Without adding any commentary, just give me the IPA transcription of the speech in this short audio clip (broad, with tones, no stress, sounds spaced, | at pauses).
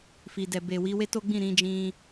f i˨ d ɛ˨ b e˨ w i˨˦ w e˦ t o˦ ɡ͡b ĩ˦˨ ɾ ĩ˨˦ d͡ʒ ĩ˧